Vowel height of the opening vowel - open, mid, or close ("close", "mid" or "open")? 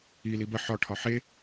close